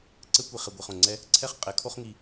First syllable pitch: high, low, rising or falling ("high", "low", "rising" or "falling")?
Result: high